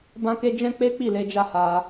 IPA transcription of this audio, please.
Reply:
b ã˦ k e˦ d͡ʒ ɛ̃˦ k͡p e˦ k͡p i˦˨ l e˧ d͡ʒ a˦ h a˧

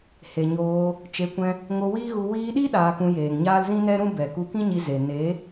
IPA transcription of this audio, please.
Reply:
h e˨ ɲ oː˧ | t͡ʃ e˨˦ kʷ ɛ̃˧ | ŋ o˧ w iː˦ ɣ u˧ w iː˧ ɗ i˦ ɗ aː˧ k ũ˧ j eː˨ ŋ ɲ aː˦ l z ĩ˦ n ɛ˦ ɾ ũ˦ b ɛ˨ k u˧ k ĩ˦ ɲ i˧ z e˨ n e˨˦

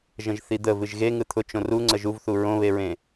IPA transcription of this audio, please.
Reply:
ʒ ə̃ ʒ θ i d̪ ə v ɨ ʒ ɣ e ŋ ɯ t̪ʰ ʊ t͡ʃ õ r u ŋ͡ǀ ə ʒ u v θ u ɹ õ β e ɹ ẽ

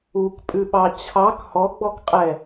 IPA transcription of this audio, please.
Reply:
u k pʼ ʉ ɓ ɑ t͡ɕʰ ɑ k h ɔ ɡ͡b ɔ k qʼ ɛ

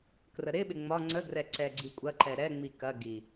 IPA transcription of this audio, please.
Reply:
k r ə ɾ ɪ ɓ ɪ ŋ͡m ɒ ŋ͡ǀ ə ɡ r ɛ ǀ ɛ ɡ͡ǀ i kʷʼ ɐ ǃ ɛ ɾ ɛ ŋ͡m i k ɐ ɡ i

